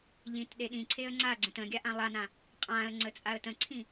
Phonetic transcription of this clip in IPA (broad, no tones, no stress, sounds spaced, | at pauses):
ʎ ĩ t ɗ e ɗ ĩ ǀʰ e ə̯ ŋ͡ǀ a ɡ͡ǀ ə̃ t ə̃ ɡʲ a ʔ ã lˠ a n ã | qʼ ã ə̯ ŋ͡ǀ ə t͡sʼ a ə̯ t ə̃ ǀʰ ĩ